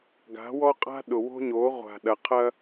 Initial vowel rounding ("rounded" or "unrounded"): unrounded